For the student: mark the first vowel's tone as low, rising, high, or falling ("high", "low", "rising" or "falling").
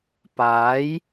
rising